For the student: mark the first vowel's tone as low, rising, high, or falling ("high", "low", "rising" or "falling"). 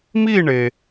falling